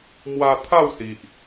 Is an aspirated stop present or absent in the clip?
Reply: present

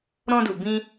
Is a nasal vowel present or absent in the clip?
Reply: present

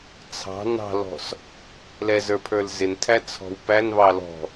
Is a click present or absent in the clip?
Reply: absent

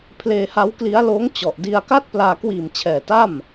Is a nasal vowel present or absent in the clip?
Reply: absent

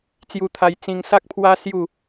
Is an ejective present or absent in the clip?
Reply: absent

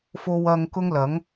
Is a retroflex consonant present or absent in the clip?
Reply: absent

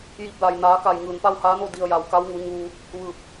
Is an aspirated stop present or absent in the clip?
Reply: absent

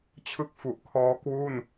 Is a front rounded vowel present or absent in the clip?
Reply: absent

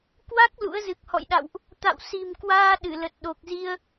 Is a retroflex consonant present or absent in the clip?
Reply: absent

